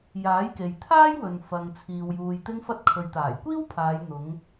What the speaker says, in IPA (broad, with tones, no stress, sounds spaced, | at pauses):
j aː˨˥ j k e˨ j t̪ʰ aː˥ j w ɵ˨ n f ɐ˨ ŋ t͡sʰ iː˨ w j uː˨ j t̪ ɪ˧ ŋ f ɐ˧ t̚ kʰ ɵ˨ ɥ t̪ aː˨˩ j kʷ iː˥ w pʰ aː˨˧ j n̪ ʊ˨˧ ŋ